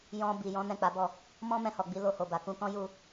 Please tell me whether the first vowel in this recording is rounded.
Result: yes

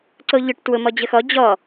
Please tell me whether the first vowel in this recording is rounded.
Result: yes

